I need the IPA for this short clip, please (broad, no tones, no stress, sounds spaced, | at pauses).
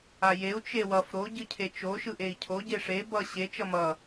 a j e u̯ t͡ʃ e w ʌ f ɾ o ɟ ɯ cʰ e t͡ʃ o ʃ ɯ ʔ e i̯ cʰ o ɟ e ʂ e b ʌ ɕ e t͡ʃ ʌ m ʌ